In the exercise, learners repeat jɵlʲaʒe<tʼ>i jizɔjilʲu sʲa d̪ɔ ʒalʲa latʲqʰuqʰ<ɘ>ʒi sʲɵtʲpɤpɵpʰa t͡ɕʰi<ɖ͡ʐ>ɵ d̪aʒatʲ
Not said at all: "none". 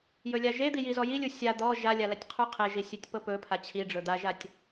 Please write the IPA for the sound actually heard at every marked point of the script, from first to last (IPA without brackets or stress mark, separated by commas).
d̪, e, ɖ͡ʐ